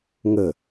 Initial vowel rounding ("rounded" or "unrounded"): unrounded